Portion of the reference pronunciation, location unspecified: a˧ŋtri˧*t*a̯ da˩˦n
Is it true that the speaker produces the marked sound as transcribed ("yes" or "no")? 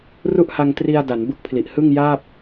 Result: no